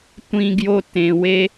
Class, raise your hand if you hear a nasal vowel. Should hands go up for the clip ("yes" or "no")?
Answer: yes